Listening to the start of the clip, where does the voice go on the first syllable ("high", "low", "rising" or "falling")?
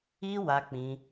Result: high